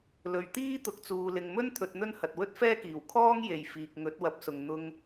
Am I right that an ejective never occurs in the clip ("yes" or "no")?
yes